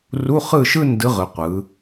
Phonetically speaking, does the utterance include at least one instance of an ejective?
no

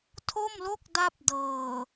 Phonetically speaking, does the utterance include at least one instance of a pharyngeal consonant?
no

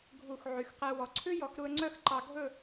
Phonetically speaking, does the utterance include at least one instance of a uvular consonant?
yes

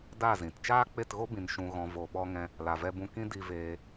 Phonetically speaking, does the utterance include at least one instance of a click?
no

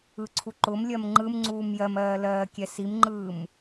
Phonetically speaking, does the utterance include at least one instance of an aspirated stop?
yes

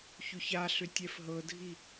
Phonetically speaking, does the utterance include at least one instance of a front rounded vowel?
yes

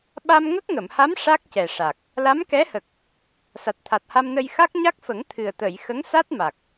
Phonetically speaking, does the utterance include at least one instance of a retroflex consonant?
yes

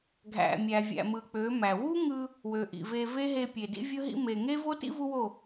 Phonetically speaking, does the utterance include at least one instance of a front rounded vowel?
yes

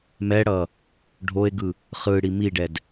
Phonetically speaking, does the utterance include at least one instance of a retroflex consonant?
yes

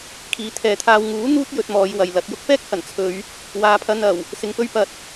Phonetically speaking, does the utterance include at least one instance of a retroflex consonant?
no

